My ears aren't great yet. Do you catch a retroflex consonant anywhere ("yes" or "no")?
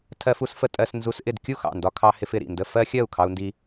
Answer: no